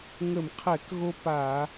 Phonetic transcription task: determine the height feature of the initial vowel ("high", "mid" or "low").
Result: mid